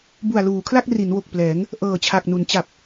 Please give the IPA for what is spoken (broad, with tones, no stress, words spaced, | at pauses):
bu˨˩a̯luː˩˦kʰla˥˩k̚ ri˩˦nwo˨˩k̚plɛː˩˦ŋ | ʔɤː˨˩t͡ɕʰa˨˩k̚nu˩˦n t͡ɕa˨˩p̚